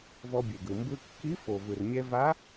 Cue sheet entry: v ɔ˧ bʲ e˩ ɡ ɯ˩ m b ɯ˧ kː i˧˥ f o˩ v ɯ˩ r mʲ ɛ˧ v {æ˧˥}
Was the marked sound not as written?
yes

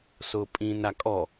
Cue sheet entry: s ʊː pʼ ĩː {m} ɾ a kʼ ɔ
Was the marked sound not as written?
yes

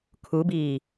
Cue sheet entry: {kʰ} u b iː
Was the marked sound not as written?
no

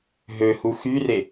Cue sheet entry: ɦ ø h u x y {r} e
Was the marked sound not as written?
no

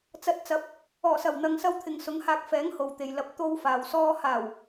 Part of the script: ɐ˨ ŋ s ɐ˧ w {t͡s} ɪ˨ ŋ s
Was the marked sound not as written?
yes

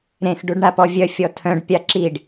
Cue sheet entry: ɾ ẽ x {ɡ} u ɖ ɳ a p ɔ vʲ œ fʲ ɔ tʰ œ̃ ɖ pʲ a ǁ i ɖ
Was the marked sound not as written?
yes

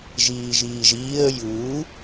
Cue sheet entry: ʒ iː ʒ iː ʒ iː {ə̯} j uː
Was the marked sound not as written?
no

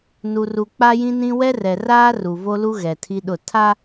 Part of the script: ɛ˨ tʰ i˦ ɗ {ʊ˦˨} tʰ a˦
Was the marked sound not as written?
no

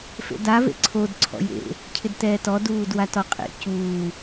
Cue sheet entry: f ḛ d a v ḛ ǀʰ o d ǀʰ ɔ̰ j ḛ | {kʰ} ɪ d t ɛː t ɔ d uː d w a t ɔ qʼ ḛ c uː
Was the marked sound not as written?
yes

